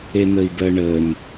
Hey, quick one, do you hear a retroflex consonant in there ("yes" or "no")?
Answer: yes